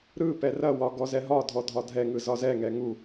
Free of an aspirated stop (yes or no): yes